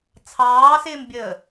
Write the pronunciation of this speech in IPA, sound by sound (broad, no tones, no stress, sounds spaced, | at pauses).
t͡sʰ ɑː s ɪː m bʲ əː